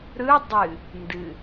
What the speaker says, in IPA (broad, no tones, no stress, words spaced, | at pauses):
ɾɯ dˤɨ | ndɨ